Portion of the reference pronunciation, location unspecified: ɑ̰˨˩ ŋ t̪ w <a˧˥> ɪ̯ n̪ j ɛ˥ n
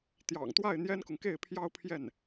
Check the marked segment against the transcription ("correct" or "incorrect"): incorrect